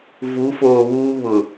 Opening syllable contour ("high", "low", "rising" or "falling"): rising